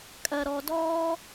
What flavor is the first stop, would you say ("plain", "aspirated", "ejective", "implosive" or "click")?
ejective